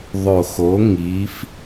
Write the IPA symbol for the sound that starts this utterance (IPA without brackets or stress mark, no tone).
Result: ðˤ